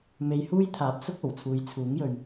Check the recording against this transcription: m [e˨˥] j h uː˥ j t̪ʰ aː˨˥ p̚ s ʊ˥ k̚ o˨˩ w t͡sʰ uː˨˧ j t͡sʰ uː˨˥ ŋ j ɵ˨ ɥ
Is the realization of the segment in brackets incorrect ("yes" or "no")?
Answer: yes